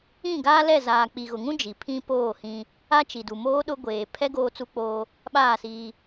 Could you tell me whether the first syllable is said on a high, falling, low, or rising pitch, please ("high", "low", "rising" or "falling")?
falling